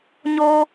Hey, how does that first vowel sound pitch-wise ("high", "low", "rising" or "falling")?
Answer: low